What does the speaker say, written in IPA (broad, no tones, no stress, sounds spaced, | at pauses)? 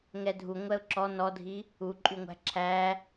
ŋ ɛ dʱ u ŋʷ ɛ ʊ̯ ǁ ɔ n ɔ dʱ i | u ǃʼ y ŋʷ æ̤ ǁʰ æ